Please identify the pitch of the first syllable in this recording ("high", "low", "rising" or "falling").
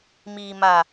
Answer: low